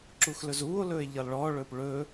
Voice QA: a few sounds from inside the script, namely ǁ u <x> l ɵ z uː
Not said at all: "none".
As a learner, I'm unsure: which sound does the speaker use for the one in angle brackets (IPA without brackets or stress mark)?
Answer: x